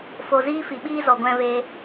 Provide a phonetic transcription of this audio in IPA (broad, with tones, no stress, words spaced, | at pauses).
fo˨ziː˦ fi˨ɓiː˦zɔ˨ ɡʷɛ̃˧veː˧